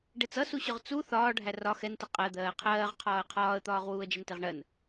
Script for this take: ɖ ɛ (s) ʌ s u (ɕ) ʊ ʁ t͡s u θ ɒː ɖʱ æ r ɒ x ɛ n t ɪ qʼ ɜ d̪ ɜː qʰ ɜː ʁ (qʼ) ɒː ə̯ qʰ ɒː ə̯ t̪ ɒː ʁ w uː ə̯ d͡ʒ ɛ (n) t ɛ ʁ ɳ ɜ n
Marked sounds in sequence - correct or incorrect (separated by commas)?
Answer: incorrect, correct, incorrect, correct